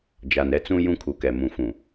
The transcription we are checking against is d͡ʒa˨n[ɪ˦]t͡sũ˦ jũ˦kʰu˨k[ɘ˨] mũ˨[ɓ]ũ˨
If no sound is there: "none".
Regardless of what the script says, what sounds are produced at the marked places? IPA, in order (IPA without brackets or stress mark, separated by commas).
ɛ˦, ɛ˨, f